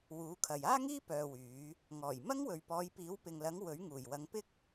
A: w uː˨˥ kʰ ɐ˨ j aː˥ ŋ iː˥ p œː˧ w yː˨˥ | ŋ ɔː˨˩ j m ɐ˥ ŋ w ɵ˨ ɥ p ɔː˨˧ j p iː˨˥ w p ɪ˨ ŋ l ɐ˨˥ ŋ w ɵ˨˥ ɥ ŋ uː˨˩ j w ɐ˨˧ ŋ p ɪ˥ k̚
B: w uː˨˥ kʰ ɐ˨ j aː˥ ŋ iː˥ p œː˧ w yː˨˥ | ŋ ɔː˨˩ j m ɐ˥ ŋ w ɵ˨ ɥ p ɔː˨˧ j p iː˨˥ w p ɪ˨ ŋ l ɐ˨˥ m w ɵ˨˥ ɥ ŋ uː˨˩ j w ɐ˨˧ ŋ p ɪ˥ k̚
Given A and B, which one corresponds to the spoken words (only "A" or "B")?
A